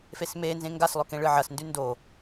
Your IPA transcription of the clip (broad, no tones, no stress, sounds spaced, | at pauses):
f e s m eː n z ẽ ŋ ɡ a s lˠ ɵ k ẽ ɭ ɨ ʕ ɐ s n d ʉ n d o